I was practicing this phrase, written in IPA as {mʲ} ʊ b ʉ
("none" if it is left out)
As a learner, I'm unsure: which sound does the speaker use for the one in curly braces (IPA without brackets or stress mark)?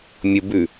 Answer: mʲ